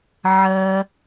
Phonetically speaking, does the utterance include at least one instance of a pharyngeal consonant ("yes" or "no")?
yes